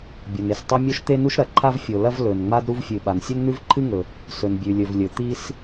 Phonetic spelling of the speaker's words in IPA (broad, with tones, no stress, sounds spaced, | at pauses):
bʲ o˩ n e˩ s tˤ ɐ˥ mʲ o˥ ʃ t̪ e˥ n u˥ ʃ ɾ ɐ˩ ǃʰ a˥ v fʲ o˩ l ɐ˥ v l ɵ˩ n ŋ͡m a˥ d ɾ u˥ v fʲ ɨ˩ ɓ a˩ n sʲ ɵ˥ n n̪ ʉ˥ v ǃʰ ɨ˥ ŋ ɵ˩ | s ɵ˩ n bʲ ʉ˩ lʲ ɵ˩ v lʲ ɵ˩ t̪ i˥ s